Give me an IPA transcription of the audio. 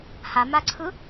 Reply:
h a m a ǀʰ ɯ

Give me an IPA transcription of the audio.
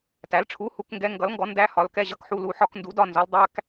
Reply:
t æ˨˥ l ʈ͡ʂʰ u˧˥˧ h u˧˥˧ k ŋ ɡ ɛ˧˥˧ ŋ ɡ ʌ˨˥ l ŋ ɡ ɔ˨˥ n d æ˧˥˧ h ɒ˨˥ l k ɛ˧˥˧ ʑ ʌ˧˥˧ k ħ u˧˥˧ l u˨˥ ħ ɒ˧˥˧ k n d u˨˥ d ɒ˧˥˧ n z ɔ˨˥ l dˤ æ˧˥˧ k

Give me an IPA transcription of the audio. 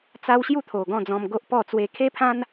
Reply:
t͡s a˦ w ɕ j u˥˧ t̪ʰ o˨˩ ɡ ɔ̃˥˧ d͡z ɔ̃˧ m ɡ o˦ ʔ p ɔ˥˧ t͡s w e˧ kʰ e˦ pʰ ã˦ n

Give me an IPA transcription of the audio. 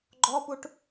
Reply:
ɡ͡ǃ ɔ p u ʈ

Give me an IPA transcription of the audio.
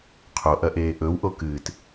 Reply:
qʰ o ʔ ɐ ʔ eː ʔ ɵ w ʔ o k ɨː t

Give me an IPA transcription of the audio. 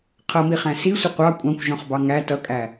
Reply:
qʰ ʌ m i χ æ̃ s i sʷ ɪ qʷ ɑ kʷʼ ɑ̃ kʷ ʒ ɔ̃ χ b ɑ ŋ æ t ʌ kʼ æ

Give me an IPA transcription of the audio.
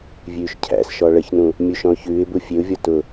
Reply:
vʲ ʉː ʃ cʰ æ̰ s ʃ ɔ ɭ ə ç n ũ | mʲ u ʃ ɔ̃ ʊ̯ ç ʉː ɪ̯ b u fʲ e ʊ̯ vʲ ɔ t ʊ

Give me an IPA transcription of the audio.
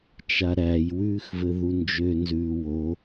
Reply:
t͡ʃ a ɾ æ j w ʉː x v ɘ ð u n d͡ʒ ø n z ʉː w o

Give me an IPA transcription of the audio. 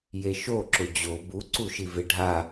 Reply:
j e ʃ o ǁ ʊ d͡ʑ o b u ǀ u ʃ i v ɪ ɖʱ a

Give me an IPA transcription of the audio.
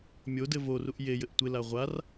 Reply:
mʲ o d ɘ v o r u ʔ j e j ɘ ʔ tʷ ɪ l a ʁʷ a r

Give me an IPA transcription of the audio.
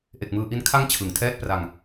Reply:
ʔ e˨˩ k̚ m ɯː˧ ʔ i˦˥ n kʰ a˦˥ ŋ t͡ɕʰ ɯ˨˩ ŋ tʰ ɛː˥˩ t̚ p r a˧ ŋ

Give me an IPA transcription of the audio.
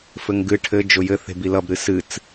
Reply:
f ɘ ŋ ɡ ɨ ʈʰ ɘ d͡ʒ ʊ j ɘ θ e̤ b i l ʌ b ɾ ɨ s ɨ t͡s

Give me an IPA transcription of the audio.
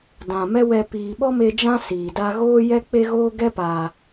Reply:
d ã˨ m ɛ˦ w ɛ˧ p iː˨ ɓ ɔ˦ m e˧ d͡ʒ ã˦ s iː˨ d a˦ ɣ oː˦ j ɛ˦ k͡p e˦ ɣ oː˦ ɡ ɛ˦ p aː˨

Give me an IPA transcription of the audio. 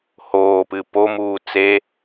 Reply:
h oː p ɨ p o m uː t͡s e

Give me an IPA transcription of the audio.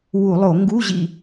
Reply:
w u˧˩˧ lˠ o˧˩˧ ŋ ɡ u˧˥˧ ʑ ḭ˦˨

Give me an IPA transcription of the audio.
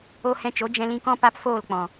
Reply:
o˧ h ɛ̃˧ t͡ʃ o˨˦ d͡ʒ ɛ̃˧ l ĩ˧ k ɔ̃˦ p a˦ p f oː˦˨ l k͡p ɔ̃˨

